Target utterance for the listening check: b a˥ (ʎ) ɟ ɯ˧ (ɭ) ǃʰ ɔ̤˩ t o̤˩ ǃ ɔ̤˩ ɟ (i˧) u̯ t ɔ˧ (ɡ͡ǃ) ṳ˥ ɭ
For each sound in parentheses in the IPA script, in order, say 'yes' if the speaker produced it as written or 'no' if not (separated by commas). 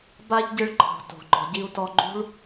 yes, yes, yes, yes